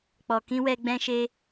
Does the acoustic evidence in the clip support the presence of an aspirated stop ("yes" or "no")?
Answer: no